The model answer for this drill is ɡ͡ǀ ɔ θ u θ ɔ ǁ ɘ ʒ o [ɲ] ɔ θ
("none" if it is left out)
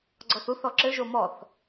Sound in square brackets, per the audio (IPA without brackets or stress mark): m